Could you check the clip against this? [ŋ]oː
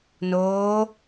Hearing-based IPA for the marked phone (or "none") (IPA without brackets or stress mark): n